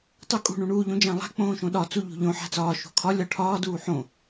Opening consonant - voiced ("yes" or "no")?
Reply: no